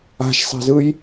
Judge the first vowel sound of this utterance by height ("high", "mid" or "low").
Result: low